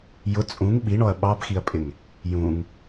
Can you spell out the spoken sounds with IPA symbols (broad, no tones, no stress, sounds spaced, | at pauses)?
j ʊ t͡sʼ ũ ŋ ɓ i ɳ ɔ ɐ̯ ɓ ɑ b x i ɐ̯ pʼ ɪ ŋ | j ũ ŋ